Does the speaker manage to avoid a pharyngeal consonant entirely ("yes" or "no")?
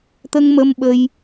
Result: yes